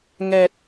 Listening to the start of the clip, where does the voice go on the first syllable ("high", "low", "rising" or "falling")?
low